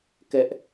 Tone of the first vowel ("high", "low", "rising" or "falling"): high